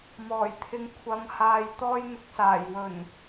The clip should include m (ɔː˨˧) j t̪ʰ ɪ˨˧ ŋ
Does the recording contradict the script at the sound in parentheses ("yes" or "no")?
yes